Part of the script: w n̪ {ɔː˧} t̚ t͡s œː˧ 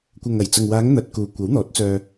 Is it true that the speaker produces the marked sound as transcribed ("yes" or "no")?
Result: no